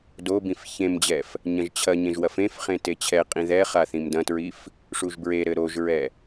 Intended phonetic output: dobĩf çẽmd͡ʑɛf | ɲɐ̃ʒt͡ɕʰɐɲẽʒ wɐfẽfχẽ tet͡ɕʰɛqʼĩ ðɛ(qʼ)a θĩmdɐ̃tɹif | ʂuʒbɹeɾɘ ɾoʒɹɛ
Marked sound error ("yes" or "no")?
yes